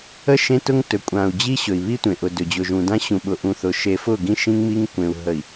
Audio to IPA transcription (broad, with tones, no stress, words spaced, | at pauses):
ə˦ ʃẽ˦tʊ˦ŋ tɵ˨kʷʼã˨u̯d͡ʑi˦ ɕɵ˨i̯βi˦tʷẽ˨ʔʊ˨ dɵ˨d͡ʑʊ˨ʒũ˨dã˦ ɕũ˨ɓʊ˨ ʔũ˨θʊ˨ʃe˨fʊ˦˨ ɡĩ˦ʃĩ˦ŋmi˦ŋ kʷẽ˨u̯ ɦə˨i̯